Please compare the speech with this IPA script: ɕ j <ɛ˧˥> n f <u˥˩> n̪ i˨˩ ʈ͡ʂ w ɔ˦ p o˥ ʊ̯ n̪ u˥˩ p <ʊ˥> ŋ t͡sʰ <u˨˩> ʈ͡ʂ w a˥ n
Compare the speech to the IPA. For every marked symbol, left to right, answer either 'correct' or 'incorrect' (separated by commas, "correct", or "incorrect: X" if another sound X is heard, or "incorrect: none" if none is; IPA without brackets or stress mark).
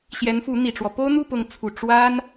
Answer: correct, incorrect: u˧˥, incorrect: ʊ˧˥, correct